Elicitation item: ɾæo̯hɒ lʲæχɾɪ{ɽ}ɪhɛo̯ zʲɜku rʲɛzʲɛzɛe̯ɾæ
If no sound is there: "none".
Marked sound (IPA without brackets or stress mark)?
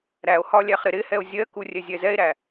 ɾ